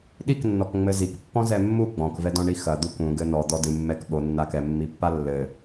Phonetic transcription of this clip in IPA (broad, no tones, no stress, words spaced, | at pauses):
ɗiknːɔk ŋ͡mɘzikpːɔ̃ zɛmːu ɡ͡bɔ̃kvɛdɔ̃ ɳixɐ d̪ukũ ɡɘnɔ d̪ɔdɨmːɛk ɓonːa kɛmːipːa lːɘ